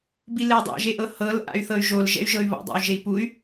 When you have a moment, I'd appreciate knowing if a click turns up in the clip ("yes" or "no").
no